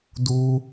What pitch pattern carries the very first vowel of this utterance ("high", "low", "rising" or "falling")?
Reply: high